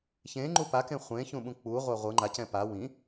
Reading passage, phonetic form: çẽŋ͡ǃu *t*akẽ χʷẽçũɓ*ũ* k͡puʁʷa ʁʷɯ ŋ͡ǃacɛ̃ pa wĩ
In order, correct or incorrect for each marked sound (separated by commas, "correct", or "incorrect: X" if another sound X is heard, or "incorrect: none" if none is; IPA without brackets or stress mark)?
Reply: incorrect: p, correct